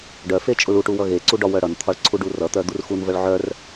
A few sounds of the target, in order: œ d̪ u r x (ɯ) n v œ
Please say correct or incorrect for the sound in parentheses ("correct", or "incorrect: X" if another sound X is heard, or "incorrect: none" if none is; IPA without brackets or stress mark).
incorrect: u